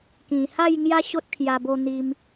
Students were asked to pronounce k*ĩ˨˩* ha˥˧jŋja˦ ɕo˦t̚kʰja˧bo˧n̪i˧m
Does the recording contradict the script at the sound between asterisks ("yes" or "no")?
no